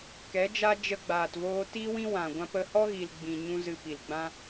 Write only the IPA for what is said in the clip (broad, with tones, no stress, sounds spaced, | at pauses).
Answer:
k ɛ˨˦ d͡ʒ a˦ d͡ʒ ə˧ ɡ͡b aː˨ t v oː˧ t i˦ w ĩ˦ w ã˨ ɡʷ ã˧ p ə˧ h ɔ˦ ɣ i˨ l ɡ͡b ĩ˨ ɲ ũ˧ z ɨ˨ p i˨ l ɡ͡b ã˦